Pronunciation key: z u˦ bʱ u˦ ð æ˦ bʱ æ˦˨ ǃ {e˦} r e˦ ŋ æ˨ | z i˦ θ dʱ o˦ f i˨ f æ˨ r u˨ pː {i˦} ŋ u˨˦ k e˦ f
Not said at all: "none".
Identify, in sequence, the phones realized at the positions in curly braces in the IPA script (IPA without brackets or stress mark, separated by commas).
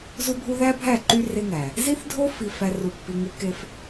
y˦, i˨